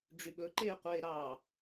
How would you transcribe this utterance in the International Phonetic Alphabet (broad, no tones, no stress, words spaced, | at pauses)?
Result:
ɖ͡ʐyɓɵ ǃeːqʷeːɾɑ